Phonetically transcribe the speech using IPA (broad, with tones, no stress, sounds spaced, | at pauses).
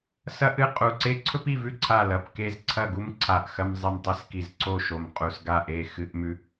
s ɐ˥ ʔ ɨ˥˨ qʼ u˧˩ ǀ e˥ ǀʰ ɵ˥ p i˥˨ v ʉ˥˨ ǀʰ a˥˨ l ɐ˧˩ p k e˥˨ z ǀʰ ɐ˥˨ ɡ u˥ m ǀʰ a˧˩ ʔ x ɐ˥ m zˤ e˥˨ m tˤ i˥ s k i˧˩ z ǀ o˥˨ ʃ o˧˩ m qʼ u˧˩ s ɡ a˥˨ ʔ e˥˨ x ɨ˥ ʔ m ʉ˥